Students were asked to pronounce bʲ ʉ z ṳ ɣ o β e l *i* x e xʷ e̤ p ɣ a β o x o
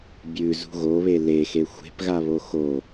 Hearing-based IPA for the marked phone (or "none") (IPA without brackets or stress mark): e